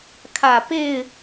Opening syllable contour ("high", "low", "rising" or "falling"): low